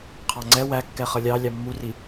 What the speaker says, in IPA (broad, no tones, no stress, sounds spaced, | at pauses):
qʰ ɑ ŋ͡ǀ ɛ w æ kː ɛ χ ʌ lʲ ɑ lʲ ɑ mː u r i